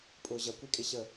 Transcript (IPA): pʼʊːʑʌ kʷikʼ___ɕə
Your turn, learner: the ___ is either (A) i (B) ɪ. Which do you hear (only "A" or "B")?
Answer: B